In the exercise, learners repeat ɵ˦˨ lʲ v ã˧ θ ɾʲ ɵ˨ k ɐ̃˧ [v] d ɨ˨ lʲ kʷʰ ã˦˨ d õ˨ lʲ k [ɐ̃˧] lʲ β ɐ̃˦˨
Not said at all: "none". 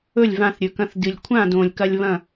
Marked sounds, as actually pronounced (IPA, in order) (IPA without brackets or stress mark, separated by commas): θ, ɐ˧